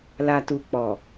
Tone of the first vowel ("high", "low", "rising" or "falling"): low